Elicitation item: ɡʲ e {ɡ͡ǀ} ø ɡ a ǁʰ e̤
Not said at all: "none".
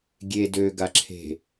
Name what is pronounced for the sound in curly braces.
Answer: d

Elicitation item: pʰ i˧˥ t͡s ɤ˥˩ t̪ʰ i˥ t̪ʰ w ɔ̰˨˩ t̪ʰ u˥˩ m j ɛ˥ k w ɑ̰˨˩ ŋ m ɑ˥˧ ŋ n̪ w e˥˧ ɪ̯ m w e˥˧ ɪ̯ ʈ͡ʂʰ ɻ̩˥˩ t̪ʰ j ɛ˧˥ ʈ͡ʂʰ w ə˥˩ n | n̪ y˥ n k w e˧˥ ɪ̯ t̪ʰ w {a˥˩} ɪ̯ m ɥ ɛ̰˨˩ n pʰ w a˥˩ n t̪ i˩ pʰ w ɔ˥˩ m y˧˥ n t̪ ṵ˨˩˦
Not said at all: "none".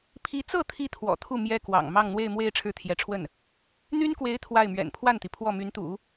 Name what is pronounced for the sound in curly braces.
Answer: a˥˩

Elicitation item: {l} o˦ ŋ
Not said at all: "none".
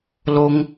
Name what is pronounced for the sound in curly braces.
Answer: l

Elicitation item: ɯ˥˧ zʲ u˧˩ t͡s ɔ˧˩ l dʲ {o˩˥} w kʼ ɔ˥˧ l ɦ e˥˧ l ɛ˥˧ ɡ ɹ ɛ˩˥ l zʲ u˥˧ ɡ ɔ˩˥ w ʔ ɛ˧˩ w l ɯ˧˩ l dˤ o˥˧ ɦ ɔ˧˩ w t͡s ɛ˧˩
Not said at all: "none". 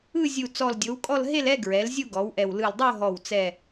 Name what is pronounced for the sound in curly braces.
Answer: o˩˥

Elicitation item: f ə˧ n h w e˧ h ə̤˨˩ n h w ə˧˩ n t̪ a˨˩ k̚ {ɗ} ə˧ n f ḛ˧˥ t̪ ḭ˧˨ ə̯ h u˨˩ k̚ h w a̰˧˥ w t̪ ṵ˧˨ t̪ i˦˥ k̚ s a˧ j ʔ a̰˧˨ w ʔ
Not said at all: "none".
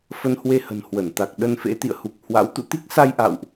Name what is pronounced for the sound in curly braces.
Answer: ɗ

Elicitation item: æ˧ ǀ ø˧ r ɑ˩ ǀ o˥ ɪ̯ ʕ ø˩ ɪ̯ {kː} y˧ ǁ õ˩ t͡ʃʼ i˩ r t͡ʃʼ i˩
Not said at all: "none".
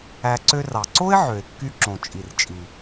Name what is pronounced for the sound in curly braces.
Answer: kː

